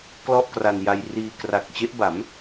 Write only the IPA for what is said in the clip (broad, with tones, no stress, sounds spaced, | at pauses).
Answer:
k l ɔ˥˩ ʔ k r a˧ n j a˧ j r iː˧ k r a˨˩ k̚ t͡ɕ e˦˥ ʔ b a˩˦ m